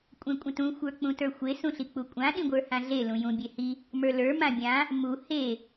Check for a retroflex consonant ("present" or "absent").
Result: absent